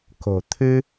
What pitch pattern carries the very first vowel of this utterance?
low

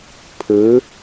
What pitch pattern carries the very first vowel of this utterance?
rising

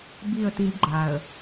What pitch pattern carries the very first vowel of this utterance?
falling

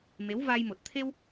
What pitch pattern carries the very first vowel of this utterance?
rising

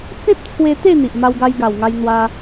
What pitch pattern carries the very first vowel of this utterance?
high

